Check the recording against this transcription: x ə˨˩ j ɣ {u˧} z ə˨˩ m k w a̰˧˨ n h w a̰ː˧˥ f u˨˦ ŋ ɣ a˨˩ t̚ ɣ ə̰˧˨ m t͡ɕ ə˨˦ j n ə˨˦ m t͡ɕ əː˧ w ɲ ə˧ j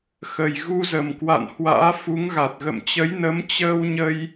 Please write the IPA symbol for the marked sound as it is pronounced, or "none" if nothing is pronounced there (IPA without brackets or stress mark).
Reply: u˧